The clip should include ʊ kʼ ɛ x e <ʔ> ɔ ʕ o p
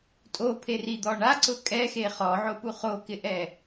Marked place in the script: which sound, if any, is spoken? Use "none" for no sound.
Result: χ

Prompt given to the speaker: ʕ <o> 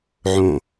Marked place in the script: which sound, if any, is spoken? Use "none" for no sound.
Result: õ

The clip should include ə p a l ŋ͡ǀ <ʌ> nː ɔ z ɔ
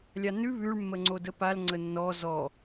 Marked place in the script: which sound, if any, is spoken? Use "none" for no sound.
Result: ə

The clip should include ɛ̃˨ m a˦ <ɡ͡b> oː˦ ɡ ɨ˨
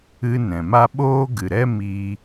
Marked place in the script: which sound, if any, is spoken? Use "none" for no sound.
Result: ɓ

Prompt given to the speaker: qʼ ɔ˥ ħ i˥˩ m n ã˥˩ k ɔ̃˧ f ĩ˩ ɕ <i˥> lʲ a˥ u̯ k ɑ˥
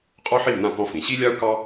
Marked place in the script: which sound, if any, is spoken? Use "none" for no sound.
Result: i˥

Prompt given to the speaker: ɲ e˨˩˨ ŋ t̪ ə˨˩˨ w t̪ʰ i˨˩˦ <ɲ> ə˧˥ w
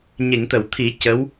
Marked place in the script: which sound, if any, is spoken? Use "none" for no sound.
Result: c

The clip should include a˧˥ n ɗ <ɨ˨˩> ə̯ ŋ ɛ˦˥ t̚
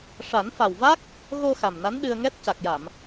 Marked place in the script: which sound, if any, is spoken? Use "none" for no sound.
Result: ɨ˧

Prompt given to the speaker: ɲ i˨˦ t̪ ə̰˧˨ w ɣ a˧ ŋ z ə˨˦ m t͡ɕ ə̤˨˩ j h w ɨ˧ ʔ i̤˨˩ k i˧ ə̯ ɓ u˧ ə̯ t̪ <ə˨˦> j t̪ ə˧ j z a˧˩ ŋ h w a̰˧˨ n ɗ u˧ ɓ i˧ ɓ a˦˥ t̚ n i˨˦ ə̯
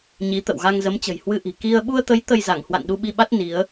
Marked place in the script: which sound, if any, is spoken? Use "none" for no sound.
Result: ə˨˦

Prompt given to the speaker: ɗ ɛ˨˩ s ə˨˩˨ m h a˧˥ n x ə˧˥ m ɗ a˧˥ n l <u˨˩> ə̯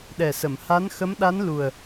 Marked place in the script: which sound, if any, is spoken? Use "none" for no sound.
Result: u˨˩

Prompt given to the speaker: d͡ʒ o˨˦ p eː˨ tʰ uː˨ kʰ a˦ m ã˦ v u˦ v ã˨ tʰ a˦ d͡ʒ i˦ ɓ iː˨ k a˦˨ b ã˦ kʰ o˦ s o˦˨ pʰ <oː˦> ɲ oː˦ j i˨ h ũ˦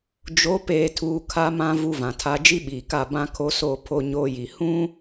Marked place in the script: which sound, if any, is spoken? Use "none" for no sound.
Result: o˦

